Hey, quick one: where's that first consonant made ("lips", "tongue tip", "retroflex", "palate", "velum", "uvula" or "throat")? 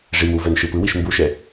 retroflex